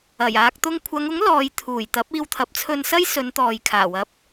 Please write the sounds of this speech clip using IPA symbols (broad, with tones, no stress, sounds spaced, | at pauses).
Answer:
ɐ˨˩ j aː˨ k̚ t̪ ʊ˧ ŋ kʷʰ ɐ˨˧ ŋ ʊ˨˥ ŋ l ɔː˨˧ j t̪ʰ uː˨˩ j t̪ ɐ˨˥ p̚ iː˧ w t̪ʰ ɐ˨˥ p̚ t͡sʰ ɵ˧ n s ɐ˥ j s ɵ˨˧ n t̪ ɔː˨ j kʰ aː˨˩ w ɐ˨˥ p̚